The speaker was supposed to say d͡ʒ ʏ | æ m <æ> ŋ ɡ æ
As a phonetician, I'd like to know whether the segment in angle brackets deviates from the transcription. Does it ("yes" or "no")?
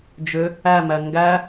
no